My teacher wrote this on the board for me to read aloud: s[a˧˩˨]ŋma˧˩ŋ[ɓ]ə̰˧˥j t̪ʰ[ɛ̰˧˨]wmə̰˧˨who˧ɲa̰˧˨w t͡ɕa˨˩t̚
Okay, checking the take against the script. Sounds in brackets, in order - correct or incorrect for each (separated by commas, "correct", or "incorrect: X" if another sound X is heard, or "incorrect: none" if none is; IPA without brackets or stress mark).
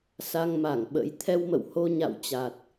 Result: incorrect: a˧, correct, incorrect: ɛ˧